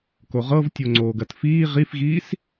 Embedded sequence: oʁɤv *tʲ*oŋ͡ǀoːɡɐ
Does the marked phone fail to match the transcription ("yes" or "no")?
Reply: no